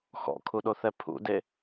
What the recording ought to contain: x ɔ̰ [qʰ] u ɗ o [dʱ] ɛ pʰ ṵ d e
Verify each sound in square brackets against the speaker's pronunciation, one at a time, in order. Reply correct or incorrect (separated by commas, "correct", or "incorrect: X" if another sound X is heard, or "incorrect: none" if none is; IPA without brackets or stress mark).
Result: incorrect: kʰ, incorrect: θ